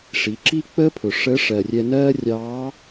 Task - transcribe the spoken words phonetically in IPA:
ʂ i˩˧ ǁ i˥ k͡p ə˥ pʰ ʊ˩ ʂ ə˧˥ ʂ ɜ˩ rʲ ɛ˧ n ɜː˥ rʲ ɑː˧˥

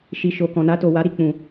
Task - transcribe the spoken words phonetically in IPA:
ʃ i˨ ʃ o˨ k ɔ̃˨ n a˧ t o˨ w a˨˦ ɾ i˧ k͡p ũ˧

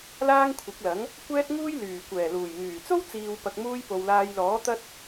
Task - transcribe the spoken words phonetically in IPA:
l aː˥ ŋ kʷʰ ɪ˨˥ k̚ l ɐ˨˥ ŋ | kʷ ɛː˥ t̚ ŋ uː˥ j l yː˨˩ kʷ ɛː˨˩ l uː˨˩ j ŋ yː˨˩ t͡s o˥ w t͡s iː˨ w p ɐ˨ k̚ m uː˧ j p o˨ w l aː˧ j l ɔː˨˥ t̪ ɐ˥ t̚

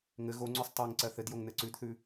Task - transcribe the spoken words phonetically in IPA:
ŋ ɘ ɣ o ŋ͡ǀ ʉ sˤ tˤ ɜ ŋ ǀ ɜ θ ɘ d j o ŋ n ɘ ǀ ʉ d θ ʉ

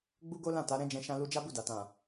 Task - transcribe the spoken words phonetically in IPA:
ɡ͡b u˦ ɡ o˦ l ã˦˨ t a˨˦ ɾ ɛ̃˦ d͡ʒ ɛ̃˧ ʃ ã˧ l u˧ d͡ʒ a˦ b u˦˨ d a˨ t ã˨

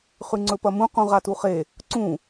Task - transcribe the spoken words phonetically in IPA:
χ ʉ ŋ͡ǀ ɵ p ɐ m ũ q ũ ʁ a t u χ e | ǀ ũ

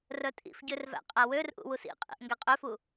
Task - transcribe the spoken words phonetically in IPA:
r œ tʼ ḭ f ɟ ø r v æ̰ qʼ æ w ø r ʔ ṵ w u s ḭ qʼ ḭ ʔ ŋ ɡ æ qʼ ø f u

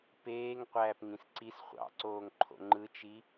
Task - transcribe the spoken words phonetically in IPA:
p eː ŋ qʷ æː p ŋ ĩ s ǀ i s χʷ ɑ̰ ǀ oː ŋ ǃʰ o̰ ŋ͡ǃ ɯ t͡ʃ i

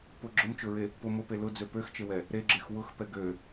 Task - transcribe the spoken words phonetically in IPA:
p ʊ ɡ͡ǁ ʊ m t͡ʃ ʊ ɹ e | p ʊ m ʊ p e l ʊ d͡z ø p ø x t͡ʃ e w ɛ | ɾ e ɡ͡ǁ e x w ʊ x p ɛ ɡ ø

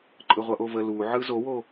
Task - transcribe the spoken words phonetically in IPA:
ǃʼ ɯ ʁʷ ʌ ʔ o v ə l u ʕ ɯ z o w o

